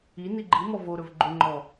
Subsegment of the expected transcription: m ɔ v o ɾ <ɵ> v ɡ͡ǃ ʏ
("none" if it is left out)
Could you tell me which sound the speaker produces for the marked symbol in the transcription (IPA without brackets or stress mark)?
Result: ɵ